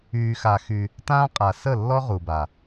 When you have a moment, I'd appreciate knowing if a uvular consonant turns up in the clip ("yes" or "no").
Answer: yes